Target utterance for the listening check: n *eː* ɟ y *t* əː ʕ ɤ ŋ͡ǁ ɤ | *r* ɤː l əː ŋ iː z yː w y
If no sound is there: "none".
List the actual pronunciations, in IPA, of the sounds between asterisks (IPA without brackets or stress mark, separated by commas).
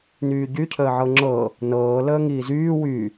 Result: yː, cʰ, n